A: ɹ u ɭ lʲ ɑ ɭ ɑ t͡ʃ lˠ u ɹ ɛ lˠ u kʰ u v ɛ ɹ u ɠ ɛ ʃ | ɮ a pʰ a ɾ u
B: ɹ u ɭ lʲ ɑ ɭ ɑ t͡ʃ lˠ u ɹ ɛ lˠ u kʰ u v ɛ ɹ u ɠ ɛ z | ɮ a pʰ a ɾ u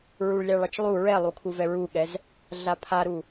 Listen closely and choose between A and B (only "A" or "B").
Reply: B